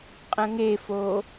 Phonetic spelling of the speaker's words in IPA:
qʼ ə̃ ŋ e f o

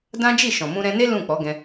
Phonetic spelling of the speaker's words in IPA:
d ã˦ d͡ʒ i˦˨ ʃ ɔ̃˨ m ũ˧ ɾ ɛ̃˧ n e˦ l ũ˦˨ k͡p ɔ˨˦ ɡ ɛ̃˧

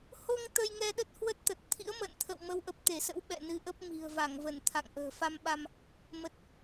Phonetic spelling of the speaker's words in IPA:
h o˧ ŋ t̪ ə˧ j ŋ ɛ˧ ɗ ə˦˥ t̚ h w ə˦˥ t̚ t̪ ə˨˩ t̚ t̪ʰ ḭ˧˥ ə̯ m ə̰ː˧˨ n t̪ʰ ə̰˧˨ w m ə˨˦ w ʔ ə˨˩ p̚ t̪ e˧˩ s ə̰˧˥ w ɓ ɛ̰˧˨ n ɨ˨˦ ʔ ə˦˥ p̚ m i̤˨˩ ə̯ v a˧˩ ŋ v ə˧˩ n t̪ʰ a̰˧˨ ŋ ʔ ə̤ː˨˩ f a˧ m ɓ a˧ m | m ə˨˩ t̚

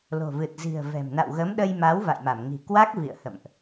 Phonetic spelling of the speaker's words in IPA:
l o̤˨˩ v ɨ˨˩ t̚ z i̤˨˩ ə̯ v ɛ̤˨˩ m n a̰˧˨ w ɣ ə˨˦ m ɗ ə˧ j m a˨˦ w v a̰˧˨ j m a˧˩ m ŋ i̤˨˩ k w a˦˥ k̚ v ḭ˧˨ ə̯ h ə̰˧˨ m ʔ

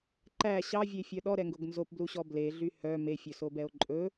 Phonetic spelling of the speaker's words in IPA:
ǃ æ ɕ ɑ vʲ e fʲ œ ɗ ɔ ɾ ɛ ŋ ɡ o ɡ n z o p b l u ɕ ɔ b l e ɮ y h œ m e fʲ ɵ s o b ɛ o̯ ǃʼ ɵ

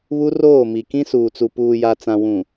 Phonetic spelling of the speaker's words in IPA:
β u˦ r oː˦˨ m i˨ k ĩ˦ s uː˨ t͡s u˨ p uː˨ j a˨ t͡s ã˨ w ũ˨

